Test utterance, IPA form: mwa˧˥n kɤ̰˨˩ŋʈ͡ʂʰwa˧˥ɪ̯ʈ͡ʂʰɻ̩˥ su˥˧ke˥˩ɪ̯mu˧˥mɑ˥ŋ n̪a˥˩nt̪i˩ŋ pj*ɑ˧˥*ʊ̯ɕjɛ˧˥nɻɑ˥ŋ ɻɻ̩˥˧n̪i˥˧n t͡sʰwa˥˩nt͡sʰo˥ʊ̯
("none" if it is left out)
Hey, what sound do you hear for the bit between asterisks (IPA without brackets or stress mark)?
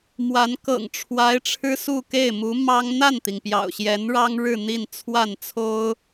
ɑ̰˨˩